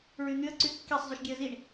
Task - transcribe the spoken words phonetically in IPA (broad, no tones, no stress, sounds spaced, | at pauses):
ɹ y n̪ y ə̯ ǀ y kː e sˤ zˤ y ʃ ɡʲ ɛ ə̯ z i ɳ